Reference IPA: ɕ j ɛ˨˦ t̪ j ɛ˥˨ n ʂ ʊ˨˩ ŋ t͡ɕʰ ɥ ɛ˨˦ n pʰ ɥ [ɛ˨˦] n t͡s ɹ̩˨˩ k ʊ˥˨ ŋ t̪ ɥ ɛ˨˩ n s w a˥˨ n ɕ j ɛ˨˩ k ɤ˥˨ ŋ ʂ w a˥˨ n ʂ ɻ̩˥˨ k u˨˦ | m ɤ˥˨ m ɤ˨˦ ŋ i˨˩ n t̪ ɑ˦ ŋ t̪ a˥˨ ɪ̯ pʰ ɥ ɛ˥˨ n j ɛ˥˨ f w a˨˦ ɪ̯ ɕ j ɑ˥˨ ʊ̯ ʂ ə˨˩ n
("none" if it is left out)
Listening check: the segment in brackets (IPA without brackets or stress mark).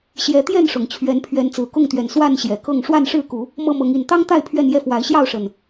ɛ˨˦